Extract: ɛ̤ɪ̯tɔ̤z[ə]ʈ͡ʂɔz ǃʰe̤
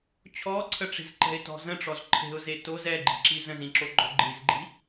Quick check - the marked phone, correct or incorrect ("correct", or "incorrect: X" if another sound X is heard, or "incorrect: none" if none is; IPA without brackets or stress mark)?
incorrect: ə̃